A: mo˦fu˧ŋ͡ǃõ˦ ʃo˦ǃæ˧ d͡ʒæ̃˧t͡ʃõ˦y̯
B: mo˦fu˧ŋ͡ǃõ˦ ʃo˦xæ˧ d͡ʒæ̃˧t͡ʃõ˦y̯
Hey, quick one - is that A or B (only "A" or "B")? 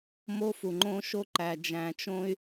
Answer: A